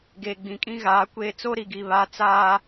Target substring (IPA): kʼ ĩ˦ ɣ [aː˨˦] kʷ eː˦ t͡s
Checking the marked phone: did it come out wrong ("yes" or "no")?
no